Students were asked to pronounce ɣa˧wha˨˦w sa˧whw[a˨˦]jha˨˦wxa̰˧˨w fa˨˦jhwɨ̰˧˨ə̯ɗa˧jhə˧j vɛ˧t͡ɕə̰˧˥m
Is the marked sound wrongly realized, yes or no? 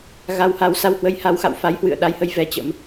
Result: yes